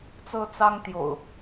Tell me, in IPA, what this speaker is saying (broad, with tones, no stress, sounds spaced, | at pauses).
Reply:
t͡s ɤ˦ t͡s ɑ˦ ŋ t̪ j o̰˨˩ ʊ̯